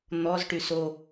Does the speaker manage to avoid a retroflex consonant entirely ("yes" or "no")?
no